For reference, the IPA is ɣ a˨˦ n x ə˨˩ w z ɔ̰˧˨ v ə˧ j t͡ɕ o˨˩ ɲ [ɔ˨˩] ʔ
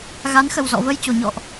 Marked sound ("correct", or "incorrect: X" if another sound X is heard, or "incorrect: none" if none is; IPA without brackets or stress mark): incorrect: ɔ̰˧˨